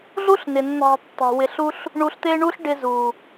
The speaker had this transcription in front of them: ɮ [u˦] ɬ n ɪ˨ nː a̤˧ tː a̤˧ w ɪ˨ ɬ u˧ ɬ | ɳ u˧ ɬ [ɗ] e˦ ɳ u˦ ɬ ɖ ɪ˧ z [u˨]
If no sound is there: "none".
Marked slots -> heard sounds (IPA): u˦, t̪, u˨

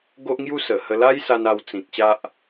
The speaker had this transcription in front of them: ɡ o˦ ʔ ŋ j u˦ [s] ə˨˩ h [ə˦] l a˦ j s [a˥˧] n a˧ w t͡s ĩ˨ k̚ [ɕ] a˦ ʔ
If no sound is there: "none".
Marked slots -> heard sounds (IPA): s, ə˧, a˧, ɕ

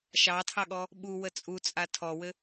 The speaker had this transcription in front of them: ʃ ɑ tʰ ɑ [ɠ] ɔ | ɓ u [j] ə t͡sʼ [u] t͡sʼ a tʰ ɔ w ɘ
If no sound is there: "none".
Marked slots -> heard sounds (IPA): ɠ, w, u

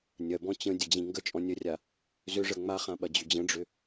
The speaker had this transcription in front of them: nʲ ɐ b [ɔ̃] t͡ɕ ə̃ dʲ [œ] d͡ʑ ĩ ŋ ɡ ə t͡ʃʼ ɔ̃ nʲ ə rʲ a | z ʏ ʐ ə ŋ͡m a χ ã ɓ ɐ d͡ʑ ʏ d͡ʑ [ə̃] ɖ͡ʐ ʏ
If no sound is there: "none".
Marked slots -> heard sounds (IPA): ɔ̃, ə, ə̃

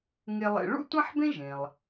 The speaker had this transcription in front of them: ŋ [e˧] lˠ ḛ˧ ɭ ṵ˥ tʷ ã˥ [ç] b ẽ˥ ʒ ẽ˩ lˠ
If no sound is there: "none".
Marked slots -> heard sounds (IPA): e˧, ħ

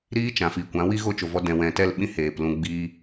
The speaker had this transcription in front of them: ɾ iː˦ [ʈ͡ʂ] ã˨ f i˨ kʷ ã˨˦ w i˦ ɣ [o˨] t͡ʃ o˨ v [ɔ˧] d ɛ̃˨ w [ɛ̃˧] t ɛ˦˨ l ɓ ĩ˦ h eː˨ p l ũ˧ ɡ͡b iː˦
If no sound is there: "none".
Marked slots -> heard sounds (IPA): t͡ʃ, o˦, ɔ˧, ɛ̃˨

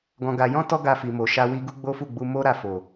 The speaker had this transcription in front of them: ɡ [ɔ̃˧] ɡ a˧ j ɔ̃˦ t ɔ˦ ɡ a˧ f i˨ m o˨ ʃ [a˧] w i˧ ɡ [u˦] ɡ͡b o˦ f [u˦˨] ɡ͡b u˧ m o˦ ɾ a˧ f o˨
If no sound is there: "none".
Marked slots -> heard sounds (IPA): ɔ̃˧, a˧, u˦, u˦˨

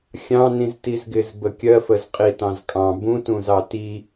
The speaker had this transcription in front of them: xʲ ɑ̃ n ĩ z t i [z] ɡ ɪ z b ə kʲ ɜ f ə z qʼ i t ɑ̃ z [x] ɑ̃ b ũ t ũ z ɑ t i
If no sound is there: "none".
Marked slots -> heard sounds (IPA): z, kʼ

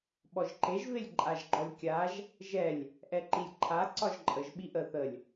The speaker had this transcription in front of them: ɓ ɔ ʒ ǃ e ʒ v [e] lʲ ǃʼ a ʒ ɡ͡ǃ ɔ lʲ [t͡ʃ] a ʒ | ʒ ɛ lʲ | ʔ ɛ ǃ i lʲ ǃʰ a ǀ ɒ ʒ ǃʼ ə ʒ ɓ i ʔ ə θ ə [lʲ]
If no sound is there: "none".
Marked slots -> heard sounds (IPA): e, kʲ, lʲ

